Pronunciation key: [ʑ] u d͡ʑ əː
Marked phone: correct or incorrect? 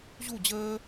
correct